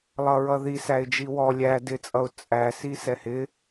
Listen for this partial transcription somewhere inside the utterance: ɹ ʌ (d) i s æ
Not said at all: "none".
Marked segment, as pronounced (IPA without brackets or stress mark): ð